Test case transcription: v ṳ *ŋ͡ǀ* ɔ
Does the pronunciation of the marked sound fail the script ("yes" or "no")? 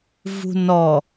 yes